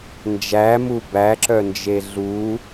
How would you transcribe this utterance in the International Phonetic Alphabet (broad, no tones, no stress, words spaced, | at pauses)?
nd͡ʒæmu bæǁœnd͡ʒe ɮu